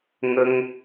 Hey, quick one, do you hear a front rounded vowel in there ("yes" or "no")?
no